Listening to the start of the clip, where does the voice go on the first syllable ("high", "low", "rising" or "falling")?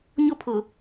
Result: high